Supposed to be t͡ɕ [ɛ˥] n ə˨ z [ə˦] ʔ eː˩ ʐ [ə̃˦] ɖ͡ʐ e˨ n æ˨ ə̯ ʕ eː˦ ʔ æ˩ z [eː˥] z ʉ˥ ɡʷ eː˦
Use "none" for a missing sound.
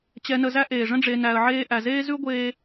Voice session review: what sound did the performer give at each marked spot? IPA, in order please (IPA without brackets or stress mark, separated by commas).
ɛ˨, æ˦, ə̃˦, eː˥